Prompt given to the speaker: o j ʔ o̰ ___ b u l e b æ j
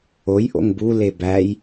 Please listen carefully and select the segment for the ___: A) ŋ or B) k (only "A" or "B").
A